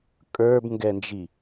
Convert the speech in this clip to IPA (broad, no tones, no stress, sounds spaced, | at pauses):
kʼ ə˞ b ŋ ɡ ɛ n d͡ʒ i